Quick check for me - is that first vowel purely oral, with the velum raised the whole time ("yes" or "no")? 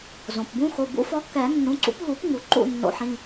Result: no